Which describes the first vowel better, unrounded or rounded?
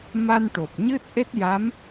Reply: unrounded